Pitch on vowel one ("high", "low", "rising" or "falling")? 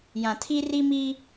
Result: low